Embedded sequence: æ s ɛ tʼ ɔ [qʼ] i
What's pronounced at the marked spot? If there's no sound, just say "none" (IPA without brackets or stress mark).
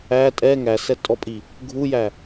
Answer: pʼ